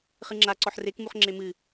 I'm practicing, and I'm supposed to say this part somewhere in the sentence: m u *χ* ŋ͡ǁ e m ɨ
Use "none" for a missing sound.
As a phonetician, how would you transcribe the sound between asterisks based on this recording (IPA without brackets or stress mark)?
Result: χ